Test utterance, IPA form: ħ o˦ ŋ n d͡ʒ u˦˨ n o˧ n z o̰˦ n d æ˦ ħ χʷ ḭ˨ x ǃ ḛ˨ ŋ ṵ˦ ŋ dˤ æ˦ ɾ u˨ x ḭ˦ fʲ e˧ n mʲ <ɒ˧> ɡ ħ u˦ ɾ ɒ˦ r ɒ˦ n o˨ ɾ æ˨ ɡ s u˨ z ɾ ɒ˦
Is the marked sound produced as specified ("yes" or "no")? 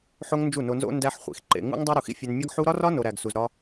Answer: no